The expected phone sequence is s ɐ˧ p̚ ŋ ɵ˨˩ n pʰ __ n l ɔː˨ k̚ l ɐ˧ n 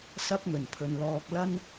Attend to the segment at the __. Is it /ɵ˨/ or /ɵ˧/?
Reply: ɵ˨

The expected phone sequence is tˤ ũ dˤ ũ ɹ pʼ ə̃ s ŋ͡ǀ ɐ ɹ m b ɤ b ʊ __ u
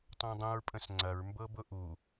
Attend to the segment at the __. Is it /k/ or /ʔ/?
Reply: ʔ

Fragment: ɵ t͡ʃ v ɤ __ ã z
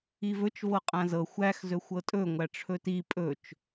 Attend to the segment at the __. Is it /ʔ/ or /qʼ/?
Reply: qʼ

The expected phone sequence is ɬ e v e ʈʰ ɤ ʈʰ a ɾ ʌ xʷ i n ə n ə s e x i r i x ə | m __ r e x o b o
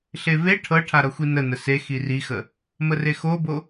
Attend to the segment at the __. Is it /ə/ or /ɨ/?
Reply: ə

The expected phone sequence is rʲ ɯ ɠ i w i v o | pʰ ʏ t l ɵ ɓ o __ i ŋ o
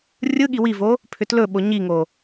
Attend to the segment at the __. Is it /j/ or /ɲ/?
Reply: ɲ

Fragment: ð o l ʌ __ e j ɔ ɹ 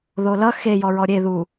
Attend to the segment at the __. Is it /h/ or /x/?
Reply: x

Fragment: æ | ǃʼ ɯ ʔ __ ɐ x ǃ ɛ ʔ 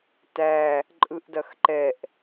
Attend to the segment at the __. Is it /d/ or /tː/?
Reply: d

